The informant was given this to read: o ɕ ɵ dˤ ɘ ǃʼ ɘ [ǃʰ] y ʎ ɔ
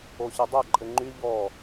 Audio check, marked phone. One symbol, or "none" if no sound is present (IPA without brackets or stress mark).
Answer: ŋ͡ǃ